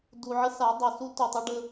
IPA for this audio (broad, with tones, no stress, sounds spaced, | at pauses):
d u˨ ʕ ə˦ s a˨˦ dˤ o˨ s u˦ t u˨ tˤ ə˦ ɖ ə˦